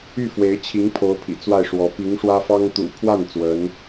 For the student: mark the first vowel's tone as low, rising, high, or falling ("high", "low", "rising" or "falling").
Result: falling